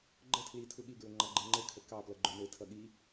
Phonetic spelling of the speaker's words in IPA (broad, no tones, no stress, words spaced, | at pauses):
ɡ͡ǃə tʰlitʰu ɠiɡɹɵŋ͡ǃɑɡ͡ǃɘ ŋ͡ǃɘkʰə kɑplʌɡ͡ǃɵ nɘtʰʌ ɠi